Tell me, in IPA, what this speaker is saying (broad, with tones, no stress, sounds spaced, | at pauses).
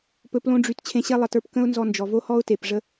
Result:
p ɵ˨ p l õ˧ ɖ͡ʐ y˨ t t͡ɕʰ ẽ˧ ɕ e˦ lˠ ə˨ t ə˞˦ p k ə̃˦ ʊ̯ n z ɔ˧ n d͡ʒ ɔ˨ v o˦ h ɔ˦ ʊ̯ t e˨ p ʐ ə˦